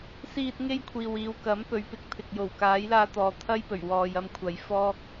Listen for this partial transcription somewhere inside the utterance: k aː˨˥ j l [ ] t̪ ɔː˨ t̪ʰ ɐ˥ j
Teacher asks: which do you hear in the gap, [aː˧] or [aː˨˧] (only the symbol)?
aː˧